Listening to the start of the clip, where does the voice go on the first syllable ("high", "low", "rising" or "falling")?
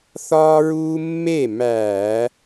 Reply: high